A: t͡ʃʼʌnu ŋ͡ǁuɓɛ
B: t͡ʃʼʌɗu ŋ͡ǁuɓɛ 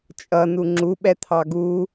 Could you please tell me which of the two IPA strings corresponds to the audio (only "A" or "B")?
A